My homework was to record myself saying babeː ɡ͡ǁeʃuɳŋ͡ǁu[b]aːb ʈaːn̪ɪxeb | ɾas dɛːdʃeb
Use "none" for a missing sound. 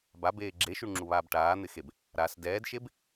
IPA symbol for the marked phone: β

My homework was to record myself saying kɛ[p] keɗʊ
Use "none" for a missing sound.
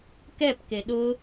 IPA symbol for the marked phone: p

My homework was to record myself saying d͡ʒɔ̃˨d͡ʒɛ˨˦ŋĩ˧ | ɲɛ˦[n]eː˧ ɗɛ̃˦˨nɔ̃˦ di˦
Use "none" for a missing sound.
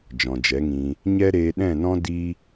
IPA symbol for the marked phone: ɾ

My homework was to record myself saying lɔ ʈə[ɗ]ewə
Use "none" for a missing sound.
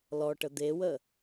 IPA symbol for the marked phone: d̪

